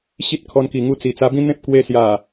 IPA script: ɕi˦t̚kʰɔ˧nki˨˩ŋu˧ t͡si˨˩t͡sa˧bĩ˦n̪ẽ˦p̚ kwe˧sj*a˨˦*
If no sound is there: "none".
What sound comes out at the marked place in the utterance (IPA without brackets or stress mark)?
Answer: a˨˩